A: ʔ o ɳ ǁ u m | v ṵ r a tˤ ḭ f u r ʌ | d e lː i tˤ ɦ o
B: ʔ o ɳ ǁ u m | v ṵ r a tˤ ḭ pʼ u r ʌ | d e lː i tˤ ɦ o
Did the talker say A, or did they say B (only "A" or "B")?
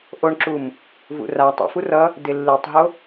A